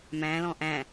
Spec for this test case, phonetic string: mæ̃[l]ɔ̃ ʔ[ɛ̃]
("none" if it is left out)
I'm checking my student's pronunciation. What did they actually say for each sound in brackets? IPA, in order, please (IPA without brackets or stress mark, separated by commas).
l, æ̃